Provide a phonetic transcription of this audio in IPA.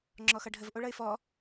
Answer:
ŋ͡ǁ ɔ x ʌ ɖʱ ə v ʔ o ɭ ʌ ɪ̯ f ɔ

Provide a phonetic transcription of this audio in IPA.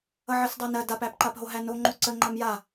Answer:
ʌ ʕ ɜ s dˤ æ n ɜ d a p æ p ǃ a p ɦ o ɦ æ n o ŋ͡ǃ o ǀ ə ŋ͡ǃ a m j a

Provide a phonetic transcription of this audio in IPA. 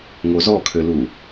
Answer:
ŋ o z ɔ kʰ ø l u

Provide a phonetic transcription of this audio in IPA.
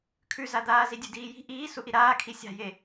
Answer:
kʰ ʉ z a d̪ aː z i dʲ ʉ d iː j i̤ ʔ iː s u ʔ i ɾ aː kʰ i sʲ a̤ j e

